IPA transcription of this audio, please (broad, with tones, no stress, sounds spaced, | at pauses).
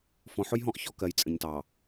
f ɔ̃˨ ħ ʊ˦ j ɦ ɔ̃˦ ʔ ç ɔ˦ k ɜ˨ j t͡sʼ ə̃˨ ɲ t ɑ˨